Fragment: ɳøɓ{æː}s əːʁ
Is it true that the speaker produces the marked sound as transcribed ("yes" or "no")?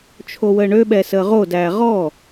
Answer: no